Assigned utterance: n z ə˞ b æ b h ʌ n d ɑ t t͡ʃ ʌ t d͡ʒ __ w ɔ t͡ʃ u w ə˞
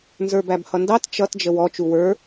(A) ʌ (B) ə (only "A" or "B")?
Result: B